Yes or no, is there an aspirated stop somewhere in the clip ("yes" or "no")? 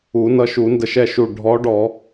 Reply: no